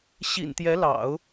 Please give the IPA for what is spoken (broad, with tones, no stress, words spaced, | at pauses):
ɕḭ˨˩nt̪jɛ˧˥lɑ̰˨˩˦ʊ̯